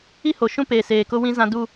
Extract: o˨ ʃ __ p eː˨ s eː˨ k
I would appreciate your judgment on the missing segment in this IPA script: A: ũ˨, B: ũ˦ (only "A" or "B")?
B